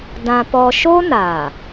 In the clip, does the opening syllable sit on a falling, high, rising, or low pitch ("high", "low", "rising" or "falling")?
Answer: high